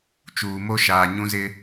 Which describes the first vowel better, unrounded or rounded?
rounded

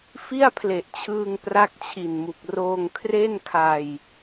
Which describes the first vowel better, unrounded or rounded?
unrounded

